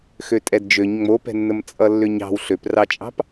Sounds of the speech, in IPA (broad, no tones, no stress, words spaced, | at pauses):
xøtʼɛdd͡ʒøɲ ŋ͡mopɛ̤nːəm t͡sʼʌlːʏɲɑ̤w ɬøprɑt͡ʃʼɑ̤p